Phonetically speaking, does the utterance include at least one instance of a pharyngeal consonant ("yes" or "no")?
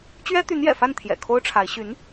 no